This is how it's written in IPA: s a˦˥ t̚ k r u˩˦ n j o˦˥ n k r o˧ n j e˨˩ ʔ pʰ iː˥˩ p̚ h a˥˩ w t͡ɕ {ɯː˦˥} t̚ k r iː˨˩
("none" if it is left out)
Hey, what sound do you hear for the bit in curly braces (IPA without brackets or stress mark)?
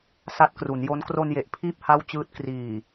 ɯː˦˥